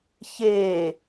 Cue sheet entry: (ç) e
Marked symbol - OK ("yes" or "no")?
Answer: yes